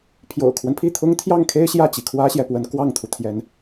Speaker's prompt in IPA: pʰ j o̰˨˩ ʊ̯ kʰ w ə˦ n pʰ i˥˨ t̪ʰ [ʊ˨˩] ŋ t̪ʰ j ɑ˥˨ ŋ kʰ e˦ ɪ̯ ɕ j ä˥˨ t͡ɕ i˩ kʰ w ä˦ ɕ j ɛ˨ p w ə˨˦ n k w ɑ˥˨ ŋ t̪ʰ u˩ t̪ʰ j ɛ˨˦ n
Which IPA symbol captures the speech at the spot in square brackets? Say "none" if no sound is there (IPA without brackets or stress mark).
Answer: ʊ˦